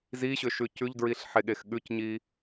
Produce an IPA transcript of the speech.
z i ɕ ʏ ʃ ʉ c ʉ ʎ d ɹ i ɬ ħ e ɠ e x ɠ ʉ c ɲ i

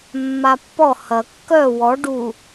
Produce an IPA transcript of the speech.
mː a pː ɔ h ɐ kː œ w ɔ ɖ u

